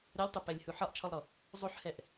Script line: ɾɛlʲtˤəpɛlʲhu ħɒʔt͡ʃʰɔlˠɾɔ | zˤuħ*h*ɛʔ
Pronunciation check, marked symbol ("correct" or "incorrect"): correct